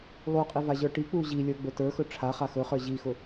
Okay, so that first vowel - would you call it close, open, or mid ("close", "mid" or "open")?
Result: close